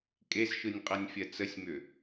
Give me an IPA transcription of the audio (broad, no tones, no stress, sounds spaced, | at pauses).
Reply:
kʼ e z ʃ ɯ nʲ qʼ ɜ nʲ fʲ ɜ t͡s ə sʲ m ʏ